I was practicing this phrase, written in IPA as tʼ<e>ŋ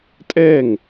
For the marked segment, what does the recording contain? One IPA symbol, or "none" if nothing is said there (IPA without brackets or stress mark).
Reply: ɛ